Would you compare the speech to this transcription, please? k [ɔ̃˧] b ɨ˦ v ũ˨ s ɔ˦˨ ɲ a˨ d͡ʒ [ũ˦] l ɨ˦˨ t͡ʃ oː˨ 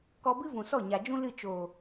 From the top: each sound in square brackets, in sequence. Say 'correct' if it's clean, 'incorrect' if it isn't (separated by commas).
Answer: incorrect, correct